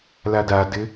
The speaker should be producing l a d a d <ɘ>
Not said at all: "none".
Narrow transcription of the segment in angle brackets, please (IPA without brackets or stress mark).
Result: ɘ